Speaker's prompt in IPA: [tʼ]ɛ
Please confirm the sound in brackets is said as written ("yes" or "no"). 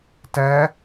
no